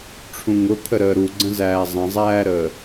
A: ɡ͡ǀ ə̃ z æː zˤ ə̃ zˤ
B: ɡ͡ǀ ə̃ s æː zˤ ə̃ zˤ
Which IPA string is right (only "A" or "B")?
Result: A